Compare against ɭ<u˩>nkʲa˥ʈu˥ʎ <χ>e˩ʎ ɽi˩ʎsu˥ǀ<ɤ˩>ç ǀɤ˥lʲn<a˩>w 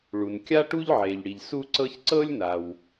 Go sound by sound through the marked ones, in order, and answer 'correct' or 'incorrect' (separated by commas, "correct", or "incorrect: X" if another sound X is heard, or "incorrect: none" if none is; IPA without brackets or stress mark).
correct, incorrect: ʕ, incorrect: ɤ˥, correct